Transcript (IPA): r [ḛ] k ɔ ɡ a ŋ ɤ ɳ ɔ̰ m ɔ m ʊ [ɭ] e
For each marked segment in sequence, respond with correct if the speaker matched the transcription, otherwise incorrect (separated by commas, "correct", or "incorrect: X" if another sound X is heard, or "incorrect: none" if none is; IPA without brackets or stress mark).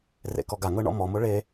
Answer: correct, correct